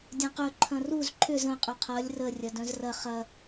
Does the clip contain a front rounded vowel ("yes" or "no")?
yes